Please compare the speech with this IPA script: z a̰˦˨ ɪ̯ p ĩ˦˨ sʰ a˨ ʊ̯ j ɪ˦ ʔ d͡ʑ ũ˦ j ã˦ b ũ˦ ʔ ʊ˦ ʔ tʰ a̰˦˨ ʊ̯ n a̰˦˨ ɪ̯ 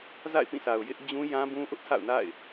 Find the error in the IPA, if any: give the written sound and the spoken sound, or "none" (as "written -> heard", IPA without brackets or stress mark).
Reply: none